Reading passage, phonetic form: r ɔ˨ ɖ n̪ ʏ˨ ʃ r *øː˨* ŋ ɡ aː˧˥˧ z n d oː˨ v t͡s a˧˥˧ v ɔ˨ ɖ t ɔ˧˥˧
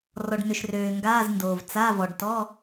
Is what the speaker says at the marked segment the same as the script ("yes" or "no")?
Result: yes